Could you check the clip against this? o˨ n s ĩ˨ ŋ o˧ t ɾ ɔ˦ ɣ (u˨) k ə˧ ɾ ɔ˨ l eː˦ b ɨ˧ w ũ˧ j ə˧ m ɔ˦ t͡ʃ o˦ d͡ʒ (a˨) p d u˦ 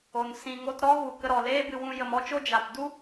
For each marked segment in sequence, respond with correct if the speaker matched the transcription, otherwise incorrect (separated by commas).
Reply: correct, correct